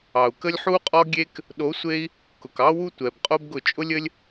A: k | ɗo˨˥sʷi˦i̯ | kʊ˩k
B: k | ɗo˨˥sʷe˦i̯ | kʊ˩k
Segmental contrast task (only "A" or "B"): B